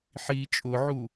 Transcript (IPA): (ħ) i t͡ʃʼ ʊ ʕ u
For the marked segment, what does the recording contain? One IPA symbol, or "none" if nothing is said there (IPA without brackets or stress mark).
ħ